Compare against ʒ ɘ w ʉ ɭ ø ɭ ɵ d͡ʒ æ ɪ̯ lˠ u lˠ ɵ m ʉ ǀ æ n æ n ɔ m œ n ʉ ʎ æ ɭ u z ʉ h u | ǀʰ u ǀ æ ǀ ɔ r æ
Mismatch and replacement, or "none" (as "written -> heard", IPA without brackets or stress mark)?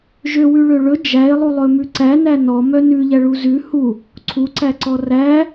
ɘ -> ø